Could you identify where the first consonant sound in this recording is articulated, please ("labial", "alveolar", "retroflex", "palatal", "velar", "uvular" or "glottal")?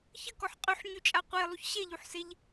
palatal